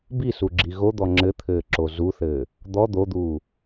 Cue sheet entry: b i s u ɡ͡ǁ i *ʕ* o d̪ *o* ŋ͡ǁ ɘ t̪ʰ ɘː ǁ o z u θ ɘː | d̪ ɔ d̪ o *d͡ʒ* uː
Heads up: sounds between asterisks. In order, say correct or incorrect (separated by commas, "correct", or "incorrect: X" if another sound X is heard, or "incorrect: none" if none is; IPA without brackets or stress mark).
incorrect: ɣ, incorrect: ɔ, incorrect: d̪